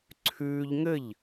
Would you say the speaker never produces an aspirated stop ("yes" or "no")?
no